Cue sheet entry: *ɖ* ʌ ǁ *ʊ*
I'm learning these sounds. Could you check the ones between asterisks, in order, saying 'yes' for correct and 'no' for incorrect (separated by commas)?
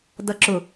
no, yes